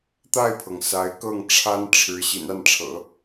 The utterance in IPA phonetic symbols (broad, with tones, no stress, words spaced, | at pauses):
t̪a˥˩ɪ̯pʰɤ˩ŋ sa˧˥ɪ̯ kɤ˥˩ŋʈ͡ʂʰa˥n ʈ͡ʂʰɻ̩˧˥ ɕḭ˨˩na˥˩nʈ͡ʂʰɤ̰˨˩˦